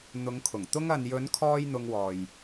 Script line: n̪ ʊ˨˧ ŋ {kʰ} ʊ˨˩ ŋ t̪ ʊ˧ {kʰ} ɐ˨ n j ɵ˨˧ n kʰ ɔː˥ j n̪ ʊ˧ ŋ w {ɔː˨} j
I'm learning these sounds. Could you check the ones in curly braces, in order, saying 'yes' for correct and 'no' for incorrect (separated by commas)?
yes, no, yes